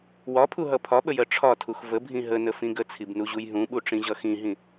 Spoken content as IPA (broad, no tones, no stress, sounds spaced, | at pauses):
w ɒ pʰ u ɦ ʌ pʰ ɒ ɓ ə j ɜ ʈ͡ʂʰ ɒ tʰ u x v ə bʱ ĩ ɦ ə n ə f ĩ ɡ ə t͡sʰ i b n u ʑ u j ɦ ũ ɓ u ʈ͡ʂ ĩ ʑ ʌ x ĩ ɦ ĩ